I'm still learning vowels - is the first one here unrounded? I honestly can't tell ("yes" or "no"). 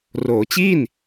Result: no